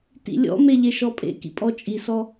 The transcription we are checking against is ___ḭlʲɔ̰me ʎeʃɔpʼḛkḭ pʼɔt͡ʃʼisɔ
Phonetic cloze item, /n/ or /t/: t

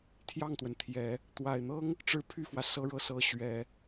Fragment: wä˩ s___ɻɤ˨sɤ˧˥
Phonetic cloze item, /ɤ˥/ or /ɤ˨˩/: ɤ˥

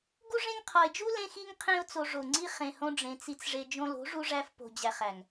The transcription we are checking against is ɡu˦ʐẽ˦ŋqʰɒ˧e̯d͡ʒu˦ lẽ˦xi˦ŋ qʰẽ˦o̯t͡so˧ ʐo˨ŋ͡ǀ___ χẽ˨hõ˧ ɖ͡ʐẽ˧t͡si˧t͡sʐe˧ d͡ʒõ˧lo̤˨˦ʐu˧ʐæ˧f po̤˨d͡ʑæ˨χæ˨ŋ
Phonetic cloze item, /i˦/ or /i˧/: i˧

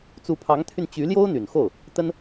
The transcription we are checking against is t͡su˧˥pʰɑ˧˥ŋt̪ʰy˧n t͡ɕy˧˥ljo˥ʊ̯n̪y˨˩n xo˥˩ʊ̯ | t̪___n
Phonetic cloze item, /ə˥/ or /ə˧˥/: ə˥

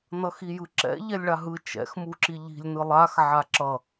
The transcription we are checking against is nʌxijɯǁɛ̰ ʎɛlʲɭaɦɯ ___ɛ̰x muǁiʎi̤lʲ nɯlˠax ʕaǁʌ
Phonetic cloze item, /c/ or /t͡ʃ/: t͡ʃ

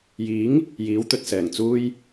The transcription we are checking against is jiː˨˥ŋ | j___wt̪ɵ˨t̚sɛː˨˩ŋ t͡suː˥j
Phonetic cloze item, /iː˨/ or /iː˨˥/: iː˨˥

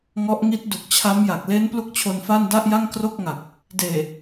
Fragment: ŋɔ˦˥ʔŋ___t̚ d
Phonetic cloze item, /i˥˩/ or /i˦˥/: i˦˥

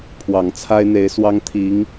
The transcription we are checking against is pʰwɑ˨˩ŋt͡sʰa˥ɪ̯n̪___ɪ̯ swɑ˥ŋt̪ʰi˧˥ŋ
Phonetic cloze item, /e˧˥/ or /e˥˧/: e˧˥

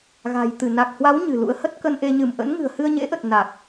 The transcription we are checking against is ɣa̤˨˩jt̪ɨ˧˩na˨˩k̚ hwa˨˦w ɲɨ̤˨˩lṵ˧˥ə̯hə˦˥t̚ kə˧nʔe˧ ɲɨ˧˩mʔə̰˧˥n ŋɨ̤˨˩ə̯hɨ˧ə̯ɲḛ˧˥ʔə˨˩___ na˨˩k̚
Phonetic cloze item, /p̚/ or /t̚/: t̚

